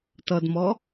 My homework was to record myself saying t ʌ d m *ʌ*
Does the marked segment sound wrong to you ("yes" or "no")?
yes